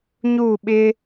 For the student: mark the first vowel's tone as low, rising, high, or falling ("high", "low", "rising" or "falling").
falling